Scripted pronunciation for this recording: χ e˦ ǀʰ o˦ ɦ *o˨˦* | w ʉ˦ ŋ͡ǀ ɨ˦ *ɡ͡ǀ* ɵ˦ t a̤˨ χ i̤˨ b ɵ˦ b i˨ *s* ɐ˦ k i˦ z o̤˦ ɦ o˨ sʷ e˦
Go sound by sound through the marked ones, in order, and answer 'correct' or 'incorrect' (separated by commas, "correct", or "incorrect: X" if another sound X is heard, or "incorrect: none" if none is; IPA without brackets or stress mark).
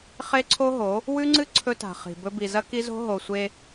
correct, incorrect: ǀʰ, incorrect: z